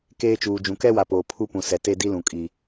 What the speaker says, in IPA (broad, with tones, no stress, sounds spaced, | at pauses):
k eː˦ t͡ʃ uː˨ d͡ʒ ũ˨ k ɛ˦ w a˨ p oː˨ pʰ u˦ p ũ˨ s ɛ˨ t e˦ d i˦ l ũ˨ kʼ i˨